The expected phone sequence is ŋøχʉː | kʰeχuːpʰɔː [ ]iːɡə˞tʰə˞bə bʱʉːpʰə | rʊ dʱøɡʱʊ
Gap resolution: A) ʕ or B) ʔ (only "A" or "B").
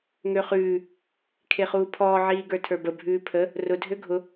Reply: A